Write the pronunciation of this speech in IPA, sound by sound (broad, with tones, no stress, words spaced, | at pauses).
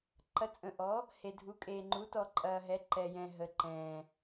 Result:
ǃɐ˨˩ t͡sʼə̃˨˩ʔɔ˩˥ | he˨˩dʱu˩˥kʼeː˨˩ ŋ͡ǃu˩˥tɔ˨˩ǃʼɐː˨˩ɦɛ˩˥ ǃɛ˨˩jɛ̃˨˩ ɦə˨˩ǃɛ̃ː˨˩